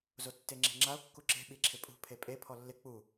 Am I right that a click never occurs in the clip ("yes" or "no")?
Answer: no